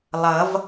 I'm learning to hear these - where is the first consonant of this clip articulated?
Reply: tongue tip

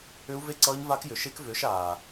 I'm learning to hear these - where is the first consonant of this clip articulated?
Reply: lips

